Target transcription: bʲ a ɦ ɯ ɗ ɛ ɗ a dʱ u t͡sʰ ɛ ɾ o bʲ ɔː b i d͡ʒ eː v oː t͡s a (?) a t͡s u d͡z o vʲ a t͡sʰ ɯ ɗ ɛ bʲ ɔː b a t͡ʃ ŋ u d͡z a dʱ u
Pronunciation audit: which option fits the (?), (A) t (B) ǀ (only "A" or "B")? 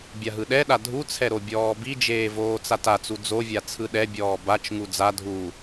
A